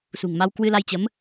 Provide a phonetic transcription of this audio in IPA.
s ṳ˨˩ ŋ m a˧ w k w ɨ˧ l a˧ j t͡ɕ ə˨˦ m

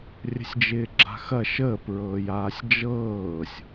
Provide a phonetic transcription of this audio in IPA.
rʲ ə̤ sʲ d͡ʒ ɪː ɡ͡ǁ a̤ x ɐ ʃ əː p ɹ ɤː j aː sʲ d͡ʒ ɤː sʲ

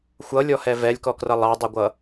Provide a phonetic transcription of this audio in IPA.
xʷ ʌ lʲ ɔ h ɛ v ɛ lʲ k ɔ k r ʌ lˠ ɑ dˤ ʌ ɡʷ ʌ

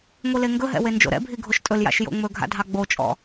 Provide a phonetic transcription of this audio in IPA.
ŋʷ i l e ŋ ɡ ɵ ɦ ɛ̰ w e n d͡ʒ o̰ ɾ ɛ̰ bʱ i ɡʱ o ʃ tʼ ɵ l j a̰ ʃ j o̰ ŋ͡m ɵ ɡʱ a̰ dʱ ɑ ɡ͡b o t͡ʃʼ ɔ̰

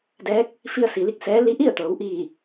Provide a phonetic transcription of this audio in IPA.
d ɛː˧˥ k̚ | f i˧ ə̯ s i˩ l i˥˨ k̚ s ɛː˧˥ l i˧˥ ʔ i˥˨ ə̯ t̪ ɤː˩˧ w ʔ iː˧˩

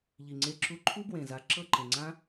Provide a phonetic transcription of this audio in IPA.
ʎ i˨ ŋ͡ǀ e˧ ǁ u˧ ǃʰ u˦ b w ẽ˨ z a˨˦ ǁ ɤ˦˨ ǃ ẽ˨ ŋ͡ǀ ã˦

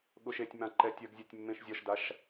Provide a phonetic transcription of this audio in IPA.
ɠ ʊ ʃ e tʲ m ã ǃ ɛ tʲ ɜ ɡ zʲ ɛ tʲ mː ẽ ʃ zʲ ɒ ʃ d a ʃ

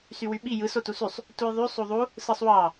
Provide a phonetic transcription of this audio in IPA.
s y w y ɓ i j ɯ s o t u s y sˤ | t u j ðˤ y sˤ u ðˤ u | s ɯ sˤ w ɑ

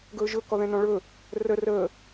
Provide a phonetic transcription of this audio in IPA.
ɡ ɵː ʒ ɵ k ɔ ð ɛ̃ n ɔ̃ ɭ ɵ | r ə r əː

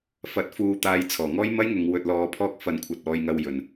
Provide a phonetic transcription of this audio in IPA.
f ɐ˨ t̚ f uː˨˧ t̪ aː˨˧ j t͡sʰ ɔː˨˩ ŋ ɔː˥ j m ɐ˥ j ŋ ʊ˨˧ ŋ w ɵ˧ t̚ l ɔː˧ pʰ ɔː˥ k̚ f ɐ˨˧ n kʷʰ ɐ˨ t̚ ɔː˧ j ŋ ɐ˧ w j ɵ˨˩ n

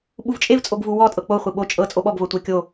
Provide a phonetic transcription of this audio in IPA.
ɓ u v t͡ʃʼ e v t͡sʼ o ɡ v u w ɔ tʼ ɤ k͡p o χʷ i ɓ o t͡ʃʼ ɤ t͡sʼ o ɓ ɔ ɡ v ɤ tʷ e kʲ o

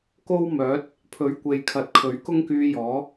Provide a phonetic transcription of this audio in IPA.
k o˥ w m œː˨˥ t̚ | pʰ ɵ˨˥ ɥ kʷ e˨ j kʰ ɐ˨˥ t̚ kʰ ɵ˨˥ ɥ k ʊ˥ ŋ k yː˧ j ɔː˨˥

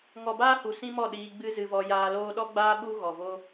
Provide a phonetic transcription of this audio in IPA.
ŋ ɔ˨ b aː˦ h u˨ s ĩ˦ m ɔ˦˨ ɗ iː˧ ɡ͡b ɨ˦ z ɨ˧ v ɔ˧ j aː˧ l oː˦ ɗ ɔ˦ ɡ͡b aː˦ ɓ u˦ ɣ ɔ˨ v o˦

